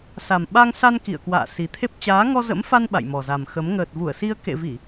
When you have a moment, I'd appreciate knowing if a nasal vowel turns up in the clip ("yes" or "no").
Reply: no